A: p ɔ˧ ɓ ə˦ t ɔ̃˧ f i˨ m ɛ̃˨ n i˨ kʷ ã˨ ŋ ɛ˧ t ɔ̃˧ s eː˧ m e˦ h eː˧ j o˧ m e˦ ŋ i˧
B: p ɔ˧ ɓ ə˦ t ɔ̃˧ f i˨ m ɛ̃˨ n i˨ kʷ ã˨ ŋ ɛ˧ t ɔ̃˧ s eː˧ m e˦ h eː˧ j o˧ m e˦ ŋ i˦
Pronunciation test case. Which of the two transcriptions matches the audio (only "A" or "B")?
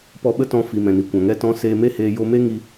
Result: A